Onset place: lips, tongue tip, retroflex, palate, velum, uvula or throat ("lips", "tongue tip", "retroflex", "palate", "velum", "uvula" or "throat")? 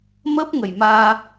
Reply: lips